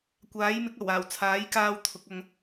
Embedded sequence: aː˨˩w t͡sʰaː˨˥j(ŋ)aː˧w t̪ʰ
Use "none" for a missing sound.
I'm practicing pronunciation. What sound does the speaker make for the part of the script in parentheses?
k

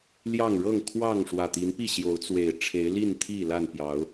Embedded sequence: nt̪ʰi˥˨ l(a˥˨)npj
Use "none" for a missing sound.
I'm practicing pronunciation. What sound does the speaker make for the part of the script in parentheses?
a˥˨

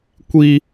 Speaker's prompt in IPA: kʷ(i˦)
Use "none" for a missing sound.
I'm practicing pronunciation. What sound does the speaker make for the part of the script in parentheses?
i˦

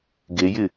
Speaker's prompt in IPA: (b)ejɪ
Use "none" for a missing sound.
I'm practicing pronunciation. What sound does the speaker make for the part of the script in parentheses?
ɡ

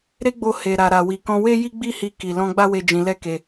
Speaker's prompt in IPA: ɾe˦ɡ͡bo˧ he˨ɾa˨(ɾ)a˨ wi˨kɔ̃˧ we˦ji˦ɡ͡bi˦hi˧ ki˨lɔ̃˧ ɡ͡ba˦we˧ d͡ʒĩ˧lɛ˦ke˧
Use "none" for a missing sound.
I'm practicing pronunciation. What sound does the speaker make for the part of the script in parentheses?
ɾ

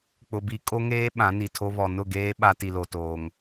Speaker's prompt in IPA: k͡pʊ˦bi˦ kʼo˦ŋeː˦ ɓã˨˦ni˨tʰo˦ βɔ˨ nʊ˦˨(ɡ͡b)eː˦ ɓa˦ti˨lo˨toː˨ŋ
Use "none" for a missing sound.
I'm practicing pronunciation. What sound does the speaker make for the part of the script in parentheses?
ɡ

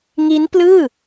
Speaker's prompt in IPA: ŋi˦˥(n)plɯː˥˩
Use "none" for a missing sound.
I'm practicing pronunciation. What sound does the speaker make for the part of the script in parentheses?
n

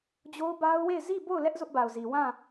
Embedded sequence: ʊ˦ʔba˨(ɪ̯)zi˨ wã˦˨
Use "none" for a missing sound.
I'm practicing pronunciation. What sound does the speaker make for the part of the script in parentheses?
ʊ̯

